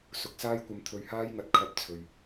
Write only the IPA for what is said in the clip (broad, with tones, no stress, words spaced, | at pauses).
sʊ˨˥k̚saː˥jkʷɐ˧m t̪ʰɵ˧ɥhaː˥jŋɐ˨˥t̚ kʰɐ˧p̚ t͡sʰɵ˨ɥ